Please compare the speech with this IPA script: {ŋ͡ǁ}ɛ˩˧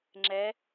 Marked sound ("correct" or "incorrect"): correct